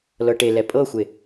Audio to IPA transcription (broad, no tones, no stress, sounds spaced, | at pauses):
l ɤ ʈ e l ɛ pʼ ɤ xʷ e